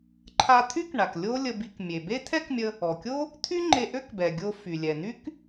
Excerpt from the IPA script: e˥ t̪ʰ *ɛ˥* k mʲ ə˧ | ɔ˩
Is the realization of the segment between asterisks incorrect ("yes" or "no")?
no